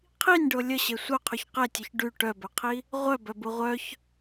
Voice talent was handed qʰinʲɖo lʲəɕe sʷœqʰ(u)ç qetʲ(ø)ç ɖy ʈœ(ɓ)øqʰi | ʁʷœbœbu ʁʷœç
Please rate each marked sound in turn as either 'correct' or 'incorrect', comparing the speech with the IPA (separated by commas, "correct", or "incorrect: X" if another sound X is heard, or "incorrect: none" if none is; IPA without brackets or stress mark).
incorrect: y, incorrect: œ, incorrect: b